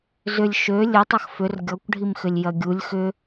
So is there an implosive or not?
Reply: no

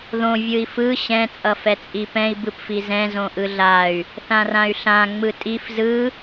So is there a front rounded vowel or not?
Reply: yes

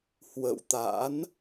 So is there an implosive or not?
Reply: no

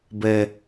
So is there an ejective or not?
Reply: no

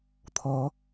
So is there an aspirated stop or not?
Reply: yes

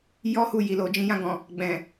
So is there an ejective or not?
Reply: no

